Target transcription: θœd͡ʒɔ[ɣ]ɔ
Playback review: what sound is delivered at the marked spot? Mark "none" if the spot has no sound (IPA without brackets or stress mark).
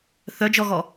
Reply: ɣ